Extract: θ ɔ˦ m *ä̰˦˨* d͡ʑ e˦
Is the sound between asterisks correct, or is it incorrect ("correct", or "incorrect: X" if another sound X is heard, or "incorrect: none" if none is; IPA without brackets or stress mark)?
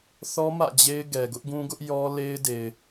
correct